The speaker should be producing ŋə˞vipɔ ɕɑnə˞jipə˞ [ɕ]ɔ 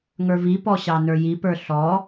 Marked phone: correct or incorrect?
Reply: incorrect